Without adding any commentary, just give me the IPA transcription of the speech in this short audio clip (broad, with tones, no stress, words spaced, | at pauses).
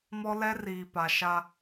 mɔ˦lɛ˦riː˨ pa˨ʃa˦